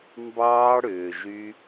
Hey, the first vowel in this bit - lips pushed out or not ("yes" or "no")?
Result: no